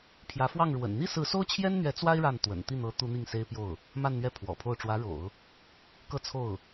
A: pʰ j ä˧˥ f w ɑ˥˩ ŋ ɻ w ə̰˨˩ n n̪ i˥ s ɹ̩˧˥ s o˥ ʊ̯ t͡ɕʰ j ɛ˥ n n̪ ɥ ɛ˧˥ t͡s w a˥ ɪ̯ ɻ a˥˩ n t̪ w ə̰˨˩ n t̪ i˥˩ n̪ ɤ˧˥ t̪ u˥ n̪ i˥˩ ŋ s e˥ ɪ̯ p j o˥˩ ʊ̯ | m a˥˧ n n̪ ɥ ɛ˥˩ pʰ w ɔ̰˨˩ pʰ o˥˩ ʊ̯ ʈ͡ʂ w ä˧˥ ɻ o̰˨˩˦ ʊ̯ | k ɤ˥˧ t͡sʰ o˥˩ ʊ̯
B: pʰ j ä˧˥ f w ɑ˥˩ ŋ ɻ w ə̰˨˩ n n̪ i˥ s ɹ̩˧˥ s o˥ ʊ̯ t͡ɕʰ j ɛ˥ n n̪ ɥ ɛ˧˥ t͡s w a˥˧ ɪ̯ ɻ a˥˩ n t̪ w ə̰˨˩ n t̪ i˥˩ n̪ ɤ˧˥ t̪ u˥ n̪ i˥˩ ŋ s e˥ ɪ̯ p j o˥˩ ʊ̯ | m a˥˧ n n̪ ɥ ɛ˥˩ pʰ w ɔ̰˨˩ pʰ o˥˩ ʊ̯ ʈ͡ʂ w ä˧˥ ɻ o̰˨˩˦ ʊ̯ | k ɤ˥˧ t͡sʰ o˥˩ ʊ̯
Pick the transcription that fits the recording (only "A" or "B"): A